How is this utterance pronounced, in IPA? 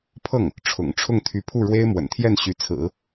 pʰ ɤ˥˩ ŋ | ʈ͡ʂʰ ʊ̰˨˩ ŋ ʈ͡ʂʰ ʊ˥˩ ŋ t̪ʰ y˧˥ pʰ u˥˩ ɻ w e˥ ɪ̯ m w ə̰˨˩ n t̪ʰ j ɛ˥˩ n ɕ y˧˥ t͡sʰ ɹ̩˨˩˦

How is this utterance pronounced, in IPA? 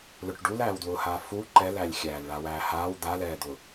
l ʊ ʈ ɖ u l æː w d w ʊː h aː f u ǃ ɛ l æ lʲ xʲ æː l ɭ a w æː h aː w d̪ a l ɛː d̪ ʊ

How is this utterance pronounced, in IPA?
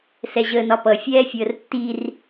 s ɛ ʑ əː n ɒ p ʌ fʲ ɛː fʲ əː r tː i r

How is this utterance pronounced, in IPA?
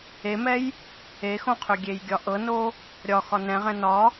e m ɛ j | e x õ qʰ ø ɡʲ e j ɡʲ ɒ ʔ ɤ n o | ɾʲ ɒ x ɒ n ɛ̃ ʁ ɛ̃ n ɒ

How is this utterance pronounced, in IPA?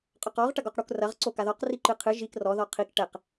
qʼ ɔ q ɔ ʁ ʈ ɐ ɡ ɔ q ɽ u k r ɐ ʁ ǀ o k a ð ɔ q r i ǃ ɨ qʰ ɨ ʒ i k r ɔ ð ɔ qʰ i k ʈ ɛ q

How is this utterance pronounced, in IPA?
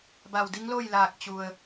b a˧˩ w d i˧˥ ŋ l o˥˨ j l aː˧˩ k̚ t͡ɕ u˩ ə̯

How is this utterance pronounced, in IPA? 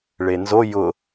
ɭ e n z o j ʊ

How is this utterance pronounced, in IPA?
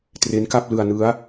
t r e˦˥ n k a˥˩ p̚ l ɯ˧ a̯ n ɯ˦˥ a̯

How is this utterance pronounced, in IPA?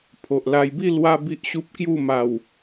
pʰ o˨ ʔ l a˧ j b i˥˧ l w a˧ b i˦ ʔ ɕ u˦ p̚ k j u˥˧ m a˨˩ w

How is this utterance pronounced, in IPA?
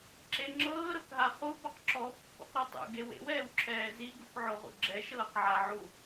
ǁ e ŋ͡ǁ ɤː ɾ ɤ k ɦ a χ u b ɔ q ǁ ɔ pː ṵ q ɾ ɔ tˤ ṵ ɡ e w ḛ w ɛː w ǁʰ ɛː z i ɡ u k ʕ o ʁ ṵ ɡ͡ǁ ɛ ʃ ɤː q ʕ a ʕ u

